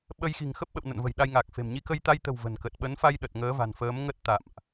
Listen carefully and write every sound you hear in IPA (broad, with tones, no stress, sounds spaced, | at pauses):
ɓ ə˧ j x i̤˨˩ ŋ x ə˦˥ p̚ ɓ ə̰˧˨ w n ə̰˧˨ n v ə̤˨˩ j ɗ a˧ j ŋ a˨˩ k̚ f e̤˨˩ m ɲ i˨˦ k ə˧ j t̪ a˧ j t̪ ə̤˨˩ w v ə̤˨˩ n k ə˨˩ t̚ ɓ ə˨˦ n f a˧ j ɗ ə˨˩ t̚ ŋ əː˨˦ v a̤˨˩ n f əː˨˦ m ŋ ə˦˥ t̚ t̪ a̰˧˨ m ʔ